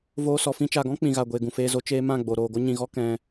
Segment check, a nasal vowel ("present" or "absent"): present